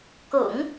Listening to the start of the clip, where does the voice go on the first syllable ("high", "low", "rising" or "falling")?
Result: low